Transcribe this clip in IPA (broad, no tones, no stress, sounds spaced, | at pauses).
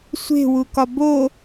sʷ e̤ w u k ɒ b o